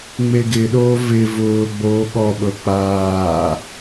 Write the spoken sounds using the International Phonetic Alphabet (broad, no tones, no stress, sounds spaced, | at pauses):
ŋ͡m e ɡ ɪ ɗ oː v ɪ v ʊː ɡ͡b oː ɠ ɔ ɓ ɤ k͡p aː